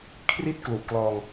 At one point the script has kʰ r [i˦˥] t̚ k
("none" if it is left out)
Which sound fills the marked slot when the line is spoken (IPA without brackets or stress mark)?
i˥˩